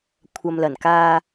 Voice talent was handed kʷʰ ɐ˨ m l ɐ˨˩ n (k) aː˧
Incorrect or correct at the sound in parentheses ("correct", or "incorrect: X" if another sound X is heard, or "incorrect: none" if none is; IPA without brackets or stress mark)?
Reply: correct